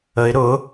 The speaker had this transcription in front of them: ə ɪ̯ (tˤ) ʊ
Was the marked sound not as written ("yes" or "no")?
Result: yes